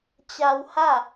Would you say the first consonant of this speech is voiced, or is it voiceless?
voiceless